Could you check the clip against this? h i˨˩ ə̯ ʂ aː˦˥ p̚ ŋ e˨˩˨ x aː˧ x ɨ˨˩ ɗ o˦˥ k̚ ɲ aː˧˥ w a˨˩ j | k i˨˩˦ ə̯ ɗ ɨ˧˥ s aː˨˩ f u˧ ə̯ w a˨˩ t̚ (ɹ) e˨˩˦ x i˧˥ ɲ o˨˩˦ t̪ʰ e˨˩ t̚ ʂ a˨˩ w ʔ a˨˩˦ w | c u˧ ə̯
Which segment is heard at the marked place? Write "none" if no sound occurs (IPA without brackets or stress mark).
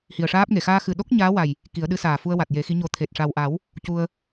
j